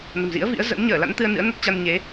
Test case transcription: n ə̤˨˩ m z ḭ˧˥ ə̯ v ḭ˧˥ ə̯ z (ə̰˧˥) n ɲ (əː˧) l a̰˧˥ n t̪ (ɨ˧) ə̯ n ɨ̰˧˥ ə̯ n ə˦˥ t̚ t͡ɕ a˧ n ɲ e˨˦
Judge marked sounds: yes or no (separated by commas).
yes, no, yes